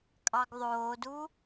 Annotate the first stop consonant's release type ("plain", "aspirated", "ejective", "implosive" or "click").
ejective